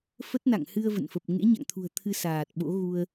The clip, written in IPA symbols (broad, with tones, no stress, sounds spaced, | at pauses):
f ə˦˥ t̚ n a̰˧˨ ŋ h ɨ˧ ə̯ v ə̰˧˨ n f ə˨˩ p̚ ŋ ḛ˧˥ ɲ a̰˧˨ ŋ t̪ʰ ṳ˨˩ ə̯ t̪ʰ ɨ˧ s aː˨˩ t̚ ɓ o̰˧˥ ɣ u˧ ə̯